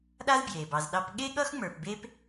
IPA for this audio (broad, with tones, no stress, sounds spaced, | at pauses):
ɗ a˥ z b j e˩ b ɑ˨ z ɗ ɑ˦ p ɠ e˥ ɠ ʌ˥ x ŋ͡m ə˞˨ p b e˦ p